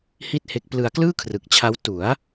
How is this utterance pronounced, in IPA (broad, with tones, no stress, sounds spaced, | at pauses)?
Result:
h i˥˩ t̚ h e˦˥ k̚ p l ɯ˧ a̯ k l ɯː˥˩ kʰ r ɯ˨˩ k̚ t͡ɕʰ a˦˥ w t u˩˦ a̯